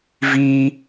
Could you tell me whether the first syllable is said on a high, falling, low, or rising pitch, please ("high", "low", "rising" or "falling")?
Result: high